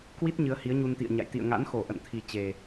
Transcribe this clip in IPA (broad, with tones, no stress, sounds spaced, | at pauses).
k w i˦˥ t̚ ɲ ɨ˨˦ ə̯ h i˨˦ ə̯ ɲ u˧ n t̪ ḭ˧˨ ə̯ ɲ a̰˧˨ j t̪ ḭ˧˨ ə̯ ŋ a̰˧˥ n x o˧˩ ʔ ə̰˧˨ n t̪ʰ i˨˩ t͡ɕ e˨˩